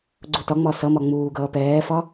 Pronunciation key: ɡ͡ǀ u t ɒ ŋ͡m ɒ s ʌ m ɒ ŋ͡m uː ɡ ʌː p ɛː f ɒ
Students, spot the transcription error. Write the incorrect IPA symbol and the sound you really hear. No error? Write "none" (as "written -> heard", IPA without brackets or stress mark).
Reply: none